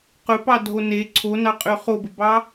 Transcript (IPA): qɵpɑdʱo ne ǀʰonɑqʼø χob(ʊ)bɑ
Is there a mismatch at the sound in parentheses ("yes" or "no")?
yes